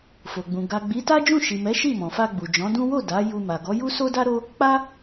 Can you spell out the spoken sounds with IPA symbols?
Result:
fo˨ɡ͡bũ˨ ɡa˨ ɡ͡bi˨˦ta˦ d͡ʒũ˦˨ʃi˨ mɛ˨˦ʃi˦˨ mɔ̃˨fa˧ ɡ͡bu˨d͡ʒɔ̃˨˦dũ˦ wo˦˨ da˨˦ju˧ ma˨ɡɔ˨˦ ju˦so˦da˦ ɾo˦ | k͡pa˦

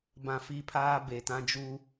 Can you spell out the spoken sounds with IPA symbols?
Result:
bã˨ fi˦pʰaː˦ be˨tã˦d͡ʒu˦

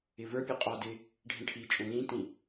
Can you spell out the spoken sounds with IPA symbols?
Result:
ɪvə˞pʲə qʼɔdɪ | ɖʱĩʈʰit͡ʃʼũ lĩtĩ

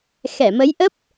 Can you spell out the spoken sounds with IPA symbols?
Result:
xɛ˧˩mə˨˦j ʔə˦˥p̚

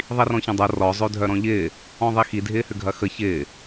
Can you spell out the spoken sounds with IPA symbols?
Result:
ðˤirɔ̃çɐ̃dˤo rɔ zˤødʱœɾɔ̃ʎɪː | ɔ̃ðˤixi dʱɪːhʏɡʱɐxə çɪː

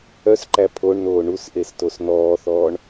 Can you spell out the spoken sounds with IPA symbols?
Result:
œsǃæ pʰoɳnoː ɳusʔes tosnɔːθɔːɳ

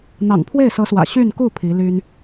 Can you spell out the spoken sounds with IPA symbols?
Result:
n̪ɑ̰˨˩ŋpʰwe˥˩ɪ̯sɤ˧˥swä̰˨˩ ɕy˥˧nku˥˩ pʰi˧˥ly˥n

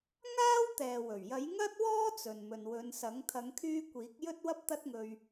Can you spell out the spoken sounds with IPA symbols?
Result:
ŋaː˥wt̪ɛː˨wɵ˨˩ɥ jɐ˨˥jŋɐ˥t̚wɔː˥ t͡sɵ˨n mɵ˨nwɵ˨˧nsɐ˨˥ŋ t̪ʰɐ˨˧ŋkʰyː˧ kʷiː˨˥k̚ jɵ˥t̚wɐ˥p̚t̪ɐ˥t̚ ŋɵ˧ɥ

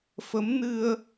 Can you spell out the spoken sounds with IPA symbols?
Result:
fə˨˦mnɨ˧ə̯

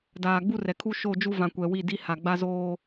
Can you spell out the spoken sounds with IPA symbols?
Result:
daː˨ɡ͡bu˦rɛ˨kʰu˦ ʃo˦˨d͡ʒu˦vã˨ kʷɛ˨wi˦˨di˦ ha˨ɡ͡ba˦zoː˦

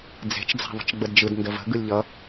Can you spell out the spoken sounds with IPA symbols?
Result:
d͡ze̤t͡ʃd͡za̤ ðˤə̤t͡ʃɡ͡bədd͡ʒɯd ndəvə̤ ɡɯlʲʎʌ

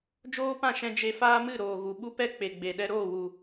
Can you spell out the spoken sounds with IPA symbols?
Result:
d͡ʒoː˦pã˦˨ʃɛ̃˧ d͡ʒe˧faː˦mɨ˦˨ ɾoː˨ɣu˨ɓu˧ pɛ˦k͡pe˨ɡ͡be˨ ɗɛ˧ɾoː˦˨wu˨

